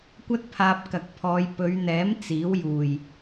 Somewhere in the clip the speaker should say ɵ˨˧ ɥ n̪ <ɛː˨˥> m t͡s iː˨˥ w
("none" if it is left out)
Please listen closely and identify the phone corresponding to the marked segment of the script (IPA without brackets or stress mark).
ɛː˨˥